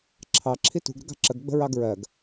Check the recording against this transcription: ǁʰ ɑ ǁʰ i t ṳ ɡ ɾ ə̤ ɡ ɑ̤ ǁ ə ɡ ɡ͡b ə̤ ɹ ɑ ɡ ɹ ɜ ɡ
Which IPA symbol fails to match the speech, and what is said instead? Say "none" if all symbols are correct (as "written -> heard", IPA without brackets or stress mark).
none